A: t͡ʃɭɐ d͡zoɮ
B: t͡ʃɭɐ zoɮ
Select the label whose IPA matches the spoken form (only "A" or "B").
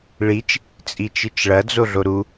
A